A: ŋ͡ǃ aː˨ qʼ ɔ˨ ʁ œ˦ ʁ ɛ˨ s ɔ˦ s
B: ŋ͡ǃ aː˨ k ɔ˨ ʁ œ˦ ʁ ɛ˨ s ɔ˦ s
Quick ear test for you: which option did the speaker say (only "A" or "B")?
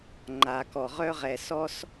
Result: B